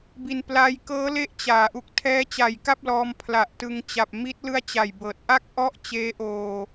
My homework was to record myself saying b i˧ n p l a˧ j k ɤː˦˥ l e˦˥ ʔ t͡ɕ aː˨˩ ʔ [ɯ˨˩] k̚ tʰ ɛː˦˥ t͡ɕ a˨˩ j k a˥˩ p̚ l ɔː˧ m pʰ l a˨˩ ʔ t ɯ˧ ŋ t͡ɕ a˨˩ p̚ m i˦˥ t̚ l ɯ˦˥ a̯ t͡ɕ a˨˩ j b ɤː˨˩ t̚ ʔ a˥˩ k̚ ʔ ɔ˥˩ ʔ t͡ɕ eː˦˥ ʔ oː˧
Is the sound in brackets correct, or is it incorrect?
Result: incorrect